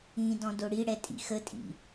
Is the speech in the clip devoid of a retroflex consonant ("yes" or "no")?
no